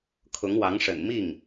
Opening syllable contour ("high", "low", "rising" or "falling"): rising